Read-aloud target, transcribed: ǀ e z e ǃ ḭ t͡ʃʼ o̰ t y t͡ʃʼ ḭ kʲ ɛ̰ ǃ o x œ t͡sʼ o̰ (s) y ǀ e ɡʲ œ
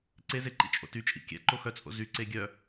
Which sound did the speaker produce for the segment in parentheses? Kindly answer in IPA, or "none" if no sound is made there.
z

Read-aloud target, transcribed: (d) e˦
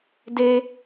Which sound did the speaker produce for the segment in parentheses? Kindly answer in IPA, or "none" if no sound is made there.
d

